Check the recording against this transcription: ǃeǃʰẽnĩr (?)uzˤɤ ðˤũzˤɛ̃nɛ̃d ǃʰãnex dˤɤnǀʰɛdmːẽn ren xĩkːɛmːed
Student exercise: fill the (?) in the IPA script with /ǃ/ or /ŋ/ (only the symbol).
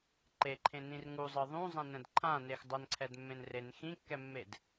ŋ